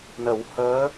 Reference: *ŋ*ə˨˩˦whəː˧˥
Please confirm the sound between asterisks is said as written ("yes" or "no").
no